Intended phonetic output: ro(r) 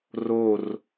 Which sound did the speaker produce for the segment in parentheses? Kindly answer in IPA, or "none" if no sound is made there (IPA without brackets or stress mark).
r